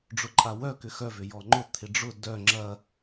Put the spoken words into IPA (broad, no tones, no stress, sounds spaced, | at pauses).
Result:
ɖ͡ʐ ʊ ǃʼ a w œ k ʏ x œ v ʏ j ɔ ŋ͡ǃ ʊ t̪ʰ ɪ ɖ͡ʐ ʊ d œ ŋ͡ǁ ɐ